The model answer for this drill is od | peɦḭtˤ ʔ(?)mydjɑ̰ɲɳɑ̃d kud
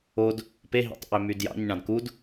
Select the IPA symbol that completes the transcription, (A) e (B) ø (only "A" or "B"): B